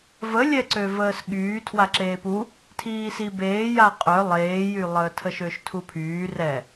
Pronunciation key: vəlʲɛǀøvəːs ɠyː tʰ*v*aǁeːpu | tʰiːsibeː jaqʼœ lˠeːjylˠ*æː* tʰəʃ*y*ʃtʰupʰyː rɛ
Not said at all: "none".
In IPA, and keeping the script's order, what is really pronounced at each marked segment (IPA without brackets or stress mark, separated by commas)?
w, əː, ø